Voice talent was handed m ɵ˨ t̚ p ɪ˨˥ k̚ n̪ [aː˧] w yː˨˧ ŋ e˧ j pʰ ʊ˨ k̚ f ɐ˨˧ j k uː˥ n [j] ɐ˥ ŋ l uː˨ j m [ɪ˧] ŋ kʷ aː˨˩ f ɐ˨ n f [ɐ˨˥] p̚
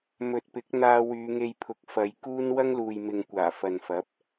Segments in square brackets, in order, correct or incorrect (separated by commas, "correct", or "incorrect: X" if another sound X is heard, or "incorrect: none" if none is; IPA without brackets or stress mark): correct, incorrect: w, incorrect: ɪ˨, correct